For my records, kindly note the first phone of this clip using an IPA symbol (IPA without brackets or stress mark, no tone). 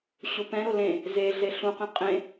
ɕ